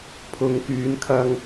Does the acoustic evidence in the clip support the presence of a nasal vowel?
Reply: no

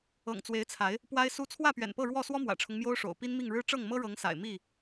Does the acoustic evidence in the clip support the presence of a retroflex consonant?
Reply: yes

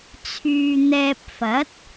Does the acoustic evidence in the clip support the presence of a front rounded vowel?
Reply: yes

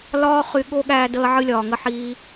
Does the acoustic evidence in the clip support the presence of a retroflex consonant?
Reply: no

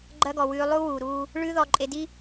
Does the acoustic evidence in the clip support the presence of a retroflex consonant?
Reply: yes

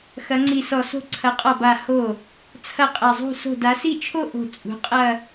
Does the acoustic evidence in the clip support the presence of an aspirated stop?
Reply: yes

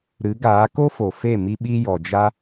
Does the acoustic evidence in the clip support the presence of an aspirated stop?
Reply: no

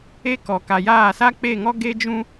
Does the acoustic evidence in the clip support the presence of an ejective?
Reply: no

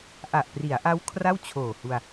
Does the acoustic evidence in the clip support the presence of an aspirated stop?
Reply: yes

